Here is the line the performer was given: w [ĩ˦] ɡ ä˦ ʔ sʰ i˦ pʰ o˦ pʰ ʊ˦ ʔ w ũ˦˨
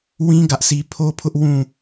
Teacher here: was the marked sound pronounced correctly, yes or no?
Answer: yes